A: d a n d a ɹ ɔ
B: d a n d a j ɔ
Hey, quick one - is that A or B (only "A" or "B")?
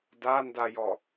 B